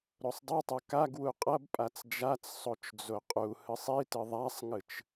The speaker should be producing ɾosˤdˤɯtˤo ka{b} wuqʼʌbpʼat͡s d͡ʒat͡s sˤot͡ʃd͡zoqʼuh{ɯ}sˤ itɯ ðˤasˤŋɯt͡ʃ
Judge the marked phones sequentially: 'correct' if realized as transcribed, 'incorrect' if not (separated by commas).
incorrect, correct